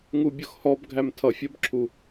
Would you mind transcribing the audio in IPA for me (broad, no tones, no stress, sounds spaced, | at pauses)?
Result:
ŋ u bʲ ʊ x h ɔ b ɡʱ æ m tʰ ʌ fʲ ɜ b ǁʰ u